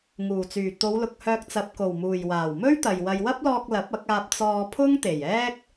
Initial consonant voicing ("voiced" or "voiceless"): voiced